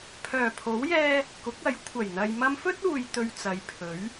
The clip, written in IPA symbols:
pʰ œː˨˩ pʰ o˨˥ w j ɛː˧ | k ʊ˨˥ k̚ ɐ˨˥ j kʷʰ ɐ˨˩ j n̪ ɐ˨ j m ɐ˧ m f ɵ˥ t̚ uː˨ j t̪ ɵ˧ ɥ t͡s ɐ˨ j pʰ ɵ˨˥ ɥ

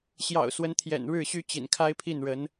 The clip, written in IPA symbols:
ɕ j ɑ̰˨˩ ʊ̯ s w ə˧˥ n t̪ʰ j ɛ̰˨˩ n ɻ ɻ̩˥˩ ɕ y˥ t͡ɕ ḭ˨˩ n kʰ a˥ ɪ̯ pʰ i˥˩ n ɻ ə˧˥ n

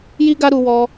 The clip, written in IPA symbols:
j i˦ ɡ a˦ ɾ u˧ w ɔ˧

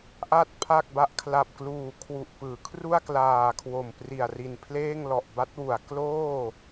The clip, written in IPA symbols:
ʔ a˥˩ t̚ pʰ a˥˩ k̚ b a˥˩ ʔ kʰ l a˨˩ p̚ k l uː˨˩ kʰ w u˨˩ ʔ p ɯː˩˦ kʰ r u˥˩ a̯ k l aː˨˩ kʰ w o˨˩ m p r i˨˩ a̯ r i˨˩ n pʰ l eː˥˩ ŋ l ɔ˨˩ ʔ b a˦˥ t̚ w u˩˦ a̯ k l oː˥˩

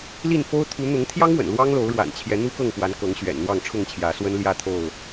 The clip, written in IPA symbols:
l i˥˨ n f o˦ ʊ̯ t̪ʰ u˨˦ n̪ ʊ˨˦ ŋ t̪ʰ j ɑ˦ ŋ w ə̰˨˩ n l w ɑ˦ ŋ l o˨˦ ʊ̯ ɻ w a̰˨˩ n t͡ɕʰ j ɛ˨˦ n̪ u˦ k ɤ˥˨ ŋ p w a˨˦ n k ɤ˨˦ ŋ ɕ ɥ ɛ̰˨˩ n n̪ w ɑ˥˨ ŋ ʈ͡ʂʰ ʊ˥˨ ŋ t͡ɕʰ j ä˨˦ s w ə˦ n l j ä˥˨ t̪ʰ o˥˨ ʊ̯

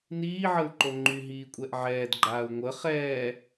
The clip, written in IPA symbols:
n iː ʕ ə u̯ ǃ o ŋ͡ǃ y ɦ iː kʷʼ ɛ ʔ ʕ ɛː d ɡ͡ǃ aː u̯ ŋʷ ə χ ɛː

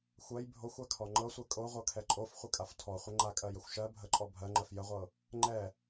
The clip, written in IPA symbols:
xʷ ɜ j bʱ o xʷ a kʰ ɔ ŋ͡ǃ ɤ sʷ ɛ kʼ o ʁʷ ɤ kʰ ɛ ǃʼ o f χʷ ə kʼ a f tʰ ɔ χʷ ə ŋ͡ǃ a kʼ ɜ j ə xʷ ʃ ɜ bʱ ə ǃʼ ɔ bʱ ɜ ŋ͡ǃ ɜ f j ə ʁʷ ɤ | ŋ͡ǃ ɛ

